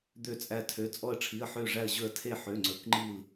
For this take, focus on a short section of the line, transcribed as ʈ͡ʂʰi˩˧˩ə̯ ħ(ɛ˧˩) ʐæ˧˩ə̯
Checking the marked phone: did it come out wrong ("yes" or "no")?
yes